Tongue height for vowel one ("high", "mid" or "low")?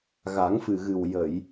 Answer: low